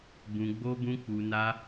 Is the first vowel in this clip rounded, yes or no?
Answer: yes